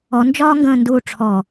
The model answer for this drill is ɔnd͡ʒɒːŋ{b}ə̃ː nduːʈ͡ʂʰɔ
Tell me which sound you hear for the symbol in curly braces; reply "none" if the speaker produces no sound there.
ɡ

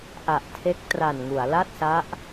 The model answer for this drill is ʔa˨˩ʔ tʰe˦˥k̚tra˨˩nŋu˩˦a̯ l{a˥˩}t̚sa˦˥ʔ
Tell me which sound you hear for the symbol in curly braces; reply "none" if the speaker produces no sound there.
a˥˩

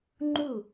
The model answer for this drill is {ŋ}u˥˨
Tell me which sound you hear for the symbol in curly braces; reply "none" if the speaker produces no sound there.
ŋ͡ǃ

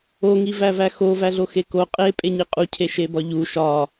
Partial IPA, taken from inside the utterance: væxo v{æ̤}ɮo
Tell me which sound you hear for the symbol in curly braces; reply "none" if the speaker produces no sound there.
æ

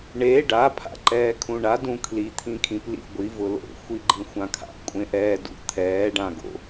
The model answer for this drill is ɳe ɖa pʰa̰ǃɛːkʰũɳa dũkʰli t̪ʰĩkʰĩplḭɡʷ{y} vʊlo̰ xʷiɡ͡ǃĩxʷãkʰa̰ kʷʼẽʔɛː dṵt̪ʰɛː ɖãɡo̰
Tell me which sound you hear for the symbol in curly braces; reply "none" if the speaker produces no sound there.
i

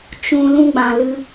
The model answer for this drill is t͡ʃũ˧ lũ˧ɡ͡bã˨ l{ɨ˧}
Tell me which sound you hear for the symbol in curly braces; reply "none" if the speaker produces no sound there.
ɨ˧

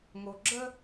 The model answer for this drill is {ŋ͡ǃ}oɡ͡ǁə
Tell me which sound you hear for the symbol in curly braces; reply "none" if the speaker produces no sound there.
ŋ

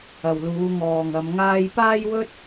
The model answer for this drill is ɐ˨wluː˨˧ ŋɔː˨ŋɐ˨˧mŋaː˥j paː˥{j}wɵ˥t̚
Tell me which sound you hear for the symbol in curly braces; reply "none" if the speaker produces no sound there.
j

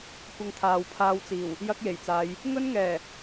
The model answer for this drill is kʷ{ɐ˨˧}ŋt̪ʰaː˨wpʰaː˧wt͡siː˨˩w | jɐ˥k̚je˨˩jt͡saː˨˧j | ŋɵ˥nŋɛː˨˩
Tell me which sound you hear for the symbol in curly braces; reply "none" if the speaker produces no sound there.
ɐ˧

